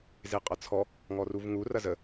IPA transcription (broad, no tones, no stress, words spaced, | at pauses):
zeqʼɐt͡sʰɔ | ŋɔruvŋu rɐzə